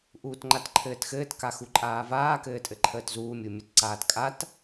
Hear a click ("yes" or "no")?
yes